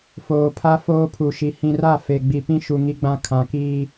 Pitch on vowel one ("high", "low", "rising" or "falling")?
low